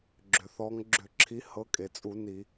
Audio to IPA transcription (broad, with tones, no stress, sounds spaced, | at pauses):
ɡ͡ǁ ʏ˩ θ ɔ˨˦ ŋ ɡ͡ǁ ʏ˧˩˧ ǁʰ i˨˦ h ɤ˨˦ kʼ e˩ t͡sʼ u˧˩˧ n i˧˩˧